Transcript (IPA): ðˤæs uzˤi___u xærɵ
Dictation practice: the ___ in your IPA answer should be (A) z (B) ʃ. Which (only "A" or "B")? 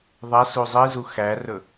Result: A